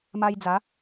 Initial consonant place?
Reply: labial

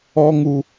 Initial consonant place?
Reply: velar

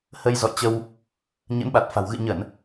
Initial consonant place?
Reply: glottal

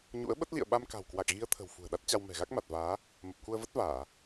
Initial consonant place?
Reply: palatal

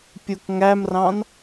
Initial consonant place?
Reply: labial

